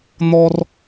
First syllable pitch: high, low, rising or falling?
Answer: low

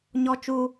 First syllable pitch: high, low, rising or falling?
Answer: high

